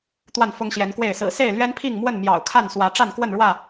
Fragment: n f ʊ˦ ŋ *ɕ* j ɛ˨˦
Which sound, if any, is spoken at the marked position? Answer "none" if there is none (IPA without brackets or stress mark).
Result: ɕ